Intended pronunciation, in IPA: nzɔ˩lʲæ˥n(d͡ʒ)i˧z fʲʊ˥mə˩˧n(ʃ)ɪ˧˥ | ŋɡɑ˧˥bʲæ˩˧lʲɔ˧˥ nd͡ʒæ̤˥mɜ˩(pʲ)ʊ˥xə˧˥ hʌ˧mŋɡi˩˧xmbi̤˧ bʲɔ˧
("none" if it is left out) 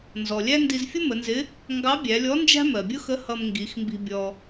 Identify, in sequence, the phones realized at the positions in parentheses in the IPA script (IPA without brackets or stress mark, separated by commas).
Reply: d, z, bʲ